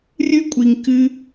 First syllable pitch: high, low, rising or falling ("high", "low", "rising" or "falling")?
high